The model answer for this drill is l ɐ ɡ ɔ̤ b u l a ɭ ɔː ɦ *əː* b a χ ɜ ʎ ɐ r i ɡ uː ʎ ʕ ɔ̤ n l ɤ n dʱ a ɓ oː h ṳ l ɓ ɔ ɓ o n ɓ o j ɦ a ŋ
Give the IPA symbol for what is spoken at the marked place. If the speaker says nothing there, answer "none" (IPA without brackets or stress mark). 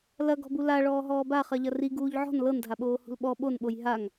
ɔː